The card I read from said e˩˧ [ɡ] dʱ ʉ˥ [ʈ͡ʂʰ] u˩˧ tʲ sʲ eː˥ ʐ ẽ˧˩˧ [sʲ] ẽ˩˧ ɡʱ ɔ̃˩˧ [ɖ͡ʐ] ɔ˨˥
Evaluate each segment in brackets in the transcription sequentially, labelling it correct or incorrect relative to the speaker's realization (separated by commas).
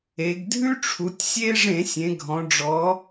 correct, correct, correct, correct